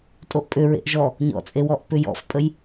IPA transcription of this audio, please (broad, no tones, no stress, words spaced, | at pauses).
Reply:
tʼoʔpʼʏ ɹḛʔʒɔ | ɲɔ̰t͡sʼewɔʔ pʏjɔ̰fpʼəj